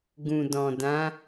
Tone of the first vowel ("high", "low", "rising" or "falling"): low